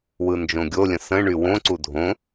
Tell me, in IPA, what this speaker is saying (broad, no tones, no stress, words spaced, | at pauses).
wɯnd͡ʒõɡʲolʲə̃ sə̃ɳy wõǀu dʱõ